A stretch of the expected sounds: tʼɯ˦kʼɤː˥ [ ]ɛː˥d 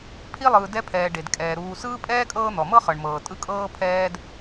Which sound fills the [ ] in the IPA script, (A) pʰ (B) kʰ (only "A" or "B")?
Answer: A